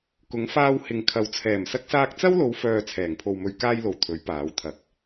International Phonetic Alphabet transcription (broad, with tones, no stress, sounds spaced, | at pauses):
k ʊ˨˥ ŋ f aː˧ w h ɪ˨ ŋ kʰ ɐ˨ w t͡sʰ ɛː˨˩ m s ɐ˧ k̚ s aː˧ k̚ t͡s ɐ˥ w l o˨˧ w f œː˨ t͡sʰ ɛː˨˩ ŋ pʰ o˨ w m ɵ˨ ɥ k aː˧ j l o˨˩ w t̪ʰ ɵ˨˥ ɥ p aː˨˥ w t̪ʰ ɐ˨ k̚